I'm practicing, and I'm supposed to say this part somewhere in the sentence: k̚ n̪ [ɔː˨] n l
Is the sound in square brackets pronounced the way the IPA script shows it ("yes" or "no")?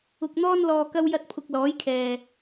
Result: no